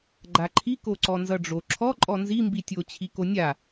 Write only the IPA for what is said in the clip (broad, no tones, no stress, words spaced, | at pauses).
ɡ͡ǃaǃʰi koǀɔnzʌɖ͡ʐo ǁʰɔ ǃʼɔnzi mbitʲo t͡ɕʰikonʲa